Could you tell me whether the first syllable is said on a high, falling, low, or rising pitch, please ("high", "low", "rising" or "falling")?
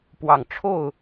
low